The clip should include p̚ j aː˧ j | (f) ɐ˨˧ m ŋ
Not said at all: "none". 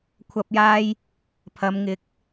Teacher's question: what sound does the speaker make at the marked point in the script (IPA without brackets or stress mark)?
pʰ